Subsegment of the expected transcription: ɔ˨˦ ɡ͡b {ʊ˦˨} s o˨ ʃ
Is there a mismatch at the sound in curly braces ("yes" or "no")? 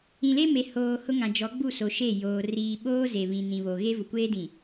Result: yes